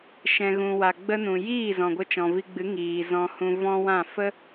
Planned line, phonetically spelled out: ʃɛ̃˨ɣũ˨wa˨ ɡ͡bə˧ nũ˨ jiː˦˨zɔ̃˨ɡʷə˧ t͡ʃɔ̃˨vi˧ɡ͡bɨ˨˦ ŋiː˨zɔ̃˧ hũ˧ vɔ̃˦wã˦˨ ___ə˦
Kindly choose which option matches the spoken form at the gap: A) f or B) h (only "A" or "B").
A